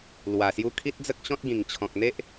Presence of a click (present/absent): absent